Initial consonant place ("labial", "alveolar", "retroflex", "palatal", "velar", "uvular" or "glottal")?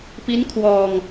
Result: labial